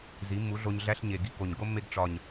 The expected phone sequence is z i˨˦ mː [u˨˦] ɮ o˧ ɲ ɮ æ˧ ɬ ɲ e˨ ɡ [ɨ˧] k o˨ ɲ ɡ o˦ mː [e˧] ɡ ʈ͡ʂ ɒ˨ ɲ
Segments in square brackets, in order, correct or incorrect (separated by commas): correct, incorrect, correct